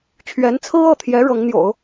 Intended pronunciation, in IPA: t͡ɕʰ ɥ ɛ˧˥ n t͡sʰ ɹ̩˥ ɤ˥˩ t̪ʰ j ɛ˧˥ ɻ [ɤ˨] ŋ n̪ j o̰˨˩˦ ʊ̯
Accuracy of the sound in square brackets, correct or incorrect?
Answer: incorrect